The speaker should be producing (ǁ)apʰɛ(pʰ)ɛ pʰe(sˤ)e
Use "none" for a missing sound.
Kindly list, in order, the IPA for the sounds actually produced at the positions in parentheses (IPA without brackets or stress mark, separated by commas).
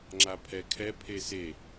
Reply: ŋ͡ǁ, kʰ, s